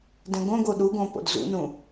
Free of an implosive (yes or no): no